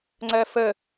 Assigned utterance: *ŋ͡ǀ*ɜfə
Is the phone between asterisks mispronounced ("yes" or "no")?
no